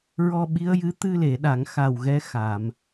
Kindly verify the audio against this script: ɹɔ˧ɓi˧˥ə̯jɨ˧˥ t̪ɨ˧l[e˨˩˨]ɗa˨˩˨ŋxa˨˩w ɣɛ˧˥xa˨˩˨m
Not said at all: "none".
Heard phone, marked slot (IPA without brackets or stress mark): e˨˩˨